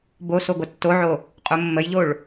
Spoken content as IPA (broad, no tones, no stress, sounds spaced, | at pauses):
b o s o ɡʷ ʌ tː o ʕ o | qʼ o mː ə j ʎ o ɭ